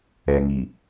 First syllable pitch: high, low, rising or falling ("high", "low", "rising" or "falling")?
low